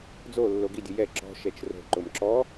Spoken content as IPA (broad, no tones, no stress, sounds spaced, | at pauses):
d͡z o lː o ɡ i dʲ ʊ j ɛ ǁ ɔ̤ ʃ ɛ t͡ʃ r o̤ ǃ ʊ m ǁ ɔ